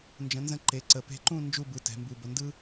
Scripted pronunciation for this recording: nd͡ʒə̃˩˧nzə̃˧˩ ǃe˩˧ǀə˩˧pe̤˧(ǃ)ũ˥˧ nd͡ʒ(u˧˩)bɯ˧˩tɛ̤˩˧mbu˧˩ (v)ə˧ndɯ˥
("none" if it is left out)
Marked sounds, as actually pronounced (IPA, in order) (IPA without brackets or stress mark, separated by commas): ǃ, u˥˧, b